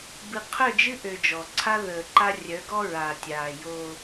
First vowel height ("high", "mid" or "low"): high